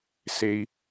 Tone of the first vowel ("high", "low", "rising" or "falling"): low